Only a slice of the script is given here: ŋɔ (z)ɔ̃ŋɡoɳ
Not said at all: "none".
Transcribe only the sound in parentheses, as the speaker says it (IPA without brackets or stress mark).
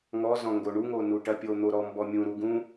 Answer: z